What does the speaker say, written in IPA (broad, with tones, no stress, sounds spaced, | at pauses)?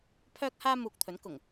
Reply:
pʰ œː˥ k̚ h aː˥ m uː˧ k̚ t̪ʰ ɵ˨˥ n k ʊ˨˩ ŋ